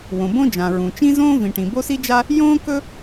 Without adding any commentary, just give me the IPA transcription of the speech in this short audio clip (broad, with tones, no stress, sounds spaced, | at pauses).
w õ˨ b õ˥ d͡ʒ ã˨ ɹ ũ˨ t͡ʃ ĩ˥ z õː˥ v ĩ˨ ʈ ĩ˨ b o˥ s i˥ d͡ʒ a˥ | j õː˥ k ɵ˥